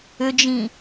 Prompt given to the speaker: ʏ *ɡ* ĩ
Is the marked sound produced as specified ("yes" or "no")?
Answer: no